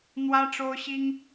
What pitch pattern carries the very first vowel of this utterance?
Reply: high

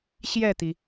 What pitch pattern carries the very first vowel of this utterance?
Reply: falling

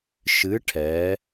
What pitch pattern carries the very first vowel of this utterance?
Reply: rising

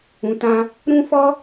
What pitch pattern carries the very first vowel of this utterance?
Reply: low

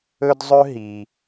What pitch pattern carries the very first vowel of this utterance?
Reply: high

